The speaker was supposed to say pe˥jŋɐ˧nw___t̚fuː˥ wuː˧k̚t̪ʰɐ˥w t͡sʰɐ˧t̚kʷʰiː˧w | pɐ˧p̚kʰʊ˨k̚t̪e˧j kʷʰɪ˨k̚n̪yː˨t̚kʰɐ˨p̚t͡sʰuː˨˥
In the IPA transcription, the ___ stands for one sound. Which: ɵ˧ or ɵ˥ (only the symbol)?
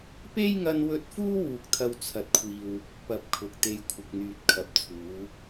ɵ˧